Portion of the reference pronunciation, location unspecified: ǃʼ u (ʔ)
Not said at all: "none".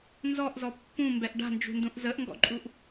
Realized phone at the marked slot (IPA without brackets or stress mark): ʔ